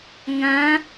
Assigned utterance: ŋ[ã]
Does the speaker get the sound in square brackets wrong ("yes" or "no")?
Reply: no